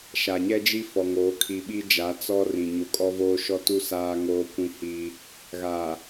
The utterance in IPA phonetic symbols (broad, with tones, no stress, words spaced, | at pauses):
ʃa˨ɲɛ˦d͡ʒi˦ fɔ˨ŋoː˨˦ kʰi˨ɓi˦d͡ʒa˨˦ t͡sɔ˦rĩ˨ ɲu˨kʼɔ˦voː˦ ʃɔ˦tu˦ saː˦ŋoː˦kʷĩ˦hi˦ | ɣaː˨